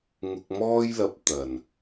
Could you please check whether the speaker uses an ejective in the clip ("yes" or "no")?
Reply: no